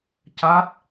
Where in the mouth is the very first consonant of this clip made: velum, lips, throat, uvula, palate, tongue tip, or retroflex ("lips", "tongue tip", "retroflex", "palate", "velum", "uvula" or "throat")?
palate